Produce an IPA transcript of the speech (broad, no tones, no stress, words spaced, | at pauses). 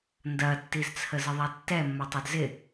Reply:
ndɐtːizt͡sʰə zɪðˤatːɛmːɐ tˤɛdzɪ